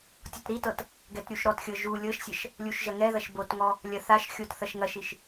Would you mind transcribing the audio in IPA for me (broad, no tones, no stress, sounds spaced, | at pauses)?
tʲ ɔ t ɾ i t ɤ t | ɡ ɛ t ɾʲ u ʃ ɾ ɔ t xʲ ɤ ʒ u lʲ ɤ ʃ sʲ ɐ ʃ | lʲ u ʃ ʒ ɐ ŋ ɛ ð ɐ ʃ b o t ŋ ɔ | lʲ ɐ θ a ʃ xʲ o t θ ɐ ʃ ŋ ɐ ʃ i ʃ